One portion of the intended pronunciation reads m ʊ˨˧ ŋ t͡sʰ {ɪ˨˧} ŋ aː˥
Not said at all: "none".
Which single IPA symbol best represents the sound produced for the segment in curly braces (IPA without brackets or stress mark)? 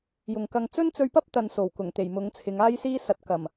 ɪ˨˧